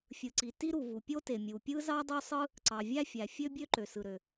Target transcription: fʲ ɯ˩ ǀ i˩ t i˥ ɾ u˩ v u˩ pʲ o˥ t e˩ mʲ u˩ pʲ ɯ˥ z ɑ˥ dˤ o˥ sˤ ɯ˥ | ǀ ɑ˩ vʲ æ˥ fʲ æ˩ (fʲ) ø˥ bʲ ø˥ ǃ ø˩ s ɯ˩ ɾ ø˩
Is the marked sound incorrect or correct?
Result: correct